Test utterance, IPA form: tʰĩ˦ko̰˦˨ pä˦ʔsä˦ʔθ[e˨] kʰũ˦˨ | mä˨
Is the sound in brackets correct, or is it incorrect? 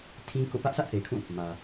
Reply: correct